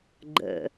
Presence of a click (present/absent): present